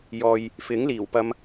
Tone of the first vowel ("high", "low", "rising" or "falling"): low